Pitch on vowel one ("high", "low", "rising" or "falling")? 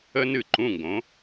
high